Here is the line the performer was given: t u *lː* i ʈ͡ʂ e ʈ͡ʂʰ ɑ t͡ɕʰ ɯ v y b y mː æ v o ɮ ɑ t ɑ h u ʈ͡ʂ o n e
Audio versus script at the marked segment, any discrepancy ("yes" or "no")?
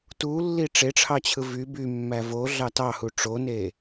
no